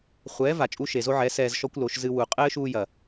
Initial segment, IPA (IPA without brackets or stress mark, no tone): χʷ